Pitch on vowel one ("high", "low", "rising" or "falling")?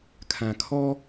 low